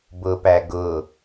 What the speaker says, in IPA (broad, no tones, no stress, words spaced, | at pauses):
bʊpæ ɡʊ